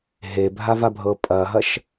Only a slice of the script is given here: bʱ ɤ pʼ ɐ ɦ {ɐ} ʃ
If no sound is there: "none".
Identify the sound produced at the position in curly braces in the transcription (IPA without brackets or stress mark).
ɐ